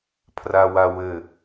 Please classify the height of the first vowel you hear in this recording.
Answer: low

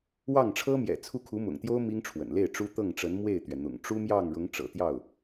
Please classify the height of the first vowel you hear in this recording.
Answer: low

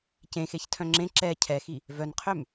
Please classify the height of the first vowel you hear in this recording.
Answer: mid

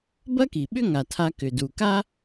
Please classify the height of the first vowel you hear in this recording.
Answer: low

